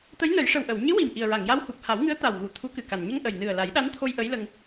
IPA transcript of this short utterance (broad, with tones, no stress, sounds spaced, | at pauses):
t̪ ə˧˥ j n ə˨˩˦ j ʂ ə˨˩ w ʔ ə˨˩˨ w ɲ ɨ˧˥ w i˨˩ m ʔ i˨˩ ə̯ ɹ a˨˩˨ ŋ j a˧ w h u˨˩ p̚ h a˨˩˦ w ŋ ɨ˧˥ ə̯ t̪ a˨˩ w ɣ u˨˩˨ t̪ʰ u˧˥ k ɨ˨˩ k a˨˩ n ɲ ə˧ ŋ ʔ ə˨˩ j n ɨ˨˩ ə̯ l a˨˩˦ j ɗ a˧˥ n t̪ʰ o˧ j ʔ ə˧˥ j l ə˧ ŋ